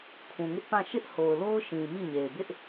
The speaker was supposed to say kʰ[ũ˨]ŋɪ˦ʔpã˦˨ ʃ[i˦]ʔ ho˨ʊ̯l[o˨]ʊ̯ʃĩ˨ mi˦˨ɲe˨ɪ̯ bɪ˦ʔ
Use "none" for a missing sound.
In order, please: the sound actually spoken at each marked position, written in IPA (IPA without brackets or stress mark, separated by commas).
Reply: ũ˨, ɪ˦, o˦